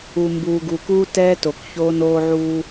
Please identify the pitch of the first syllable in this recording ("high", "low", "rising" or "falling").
low